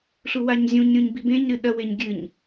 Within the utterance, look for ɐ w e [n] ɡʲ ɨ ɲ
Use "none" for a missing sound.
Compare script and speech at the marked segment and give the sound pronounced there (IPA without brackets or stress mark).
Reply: ɲ